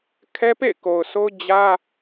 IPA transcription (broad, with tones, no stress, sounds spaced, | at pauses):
kʰ ɛ˦ p ḛ˦˨ ɪ̯ k o˨ ʊ̯ s o˦ ʊ̯ d͡ʑ ä˦